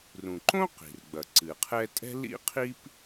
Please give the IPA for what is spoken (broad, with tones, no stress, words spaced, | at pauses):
rũ˩ǃõ˥ qi̤˩rɡ͡bɐ˩ ǀɨ˩qʰɛ˥ tʼɛ̤˥lḭ˥qʰi˥p